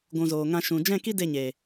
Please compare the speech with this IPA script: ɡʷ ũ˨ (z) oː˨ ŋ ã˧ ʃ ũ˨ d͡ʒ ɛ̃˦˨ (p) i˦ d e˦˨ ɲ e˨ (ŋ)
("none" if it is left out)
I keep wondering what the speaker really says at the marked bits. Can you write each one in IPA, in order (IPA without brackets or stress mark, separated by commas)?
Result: z, k, none